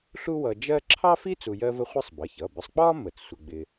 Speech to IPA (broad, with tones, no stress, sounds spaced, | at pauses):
ɬ u˥ w ʌ˧ d͡ʒ ɜ˥ ǁʰ ɑ˥ f i˥ t͡s u˧ j ɜ˥ v ə˥ χʷ ɪ˥ sˤ b ʌ˩˧˩ ç ʌ˩˧˩ b ɪ˧ sˤ k͡p ɒ˥ m ə˧˩˧ t͡s sʷ ɪ˧ ɡ͡b ɪ˧